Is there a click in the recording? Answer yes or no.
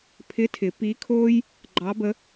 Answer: yes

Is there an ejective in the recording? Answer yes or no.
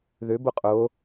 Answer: yes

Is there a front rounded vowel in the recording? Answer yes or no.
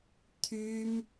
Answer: yes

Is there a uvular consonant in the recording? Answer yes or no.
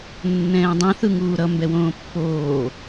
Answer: no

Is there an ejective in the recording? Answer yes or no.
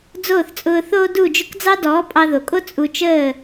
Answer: yes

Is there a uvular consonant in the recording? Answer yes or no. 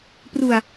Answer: no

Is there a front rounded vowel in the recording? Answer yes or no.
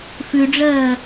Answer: no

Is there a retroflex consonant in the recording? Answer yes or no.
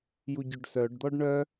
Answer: yes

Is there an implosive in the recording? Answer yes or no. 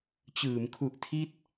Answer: no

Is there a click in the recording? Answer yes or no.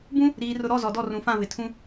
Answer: no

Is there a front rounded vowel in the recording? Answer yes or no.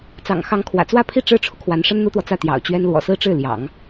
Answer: no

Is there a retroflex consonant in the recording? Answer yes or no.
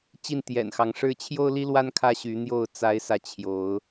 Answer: yes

